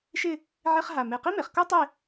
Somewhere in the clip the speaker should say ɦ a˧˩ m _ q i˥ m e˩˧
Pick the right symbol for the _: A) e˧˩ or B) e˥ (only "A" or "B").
A